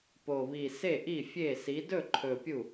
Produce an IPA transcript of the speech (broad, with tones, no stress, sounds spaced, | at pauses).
p o˨˩ β i˨˩ s e˥˩ ʔ i˥˩ fʲ e˥˩ s i˨˥ d ɵ˥˩ ǃʰ ɵ˨˩ pʲ u˥˩